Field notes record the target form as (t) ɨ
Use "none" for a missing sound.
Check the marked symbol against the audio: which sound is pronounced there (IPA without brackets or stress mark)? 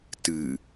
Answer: t